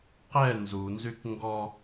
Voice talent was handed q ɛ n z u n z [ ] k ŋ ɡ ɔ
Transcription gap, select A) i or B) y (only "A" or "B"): B